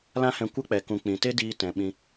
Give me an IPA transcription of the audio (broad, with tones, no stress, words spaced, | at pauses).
lã˦hɛ̃˧ kʷə˦k͡pɛ˨kũ˨k͡pĩ˨ te˦diː˧ tɛ̃˨ ɓĩ˧